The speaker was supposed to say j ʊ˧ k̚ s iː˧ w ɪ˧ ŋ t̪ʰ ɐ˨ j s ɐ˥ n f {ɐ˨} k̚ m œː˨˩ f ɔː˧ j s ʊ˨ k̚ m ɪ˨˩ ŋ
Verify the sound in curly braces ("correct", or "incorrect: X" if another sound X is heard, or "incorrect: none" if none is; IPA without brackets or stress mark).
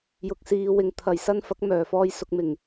incorrect: ɐ˨˥